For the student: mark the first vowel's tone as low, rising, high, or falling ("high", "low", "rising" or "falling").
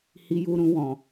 low